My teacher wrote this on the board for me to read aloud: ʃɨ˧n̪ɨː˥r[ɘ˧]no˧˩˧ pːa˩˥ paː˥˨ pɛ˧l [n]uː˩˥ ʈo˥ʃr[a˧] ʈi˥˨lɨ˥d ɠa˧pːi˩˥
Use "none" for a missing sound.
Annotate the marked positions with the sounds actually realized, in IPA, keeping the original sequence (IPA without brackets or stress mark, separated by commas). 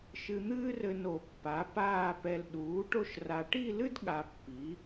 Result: ɘ˧, ɗ, a˧